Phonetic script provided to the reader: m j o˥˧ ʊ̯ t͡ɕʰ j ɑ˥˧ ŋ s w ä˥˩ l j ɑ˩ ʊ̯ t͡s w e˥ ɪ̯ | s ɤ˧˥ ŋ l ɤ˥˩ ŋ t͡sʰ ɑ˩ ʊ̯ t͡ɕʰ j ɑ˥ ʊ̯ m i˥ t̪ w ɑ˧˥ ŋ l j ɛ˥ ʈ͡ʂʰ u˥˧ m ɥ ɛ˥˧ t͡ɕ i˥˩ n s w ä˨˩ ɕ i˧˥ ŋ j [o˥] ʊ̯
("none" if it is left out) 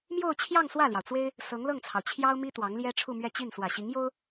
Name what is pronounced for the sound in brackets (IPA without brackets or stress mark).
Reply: o˥